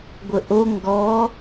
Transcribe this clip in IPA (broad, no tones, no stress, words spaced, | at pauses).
ɡʷəʔo ŋɡɔ